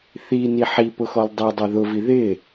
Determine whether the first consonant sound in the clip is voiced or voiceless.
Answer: voiceless